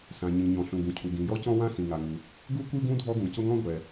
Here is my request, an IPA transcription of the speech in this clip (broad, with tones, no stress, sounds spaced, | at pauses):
s ã˩ ɲ ĩ˩ ɲ ɔ̃˩ ɬ ũ˩ ɡ ũ˩ cʰ u˩ ɡ ĩ˩ j ɔ˥ c ɔ̃˥ w ã˥ s ĩ˩ ŋ a˩ ŋ u˩ | ɡ u˥ kʷ i˥ ɡ ũ˥ dʱ ɔ˥ ɡ ũ˩ c ʊ˥ ŋ ɔ̃˥ ɡʷ ɛ˩